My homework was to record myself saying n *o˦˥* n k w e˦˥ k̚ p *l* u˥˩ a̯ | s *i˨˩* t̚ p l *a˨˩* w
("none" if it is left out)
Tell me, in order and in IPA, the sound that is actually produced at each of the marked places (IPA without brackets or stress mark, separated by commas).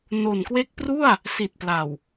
o˨˩, r, i˨˩, a˨˩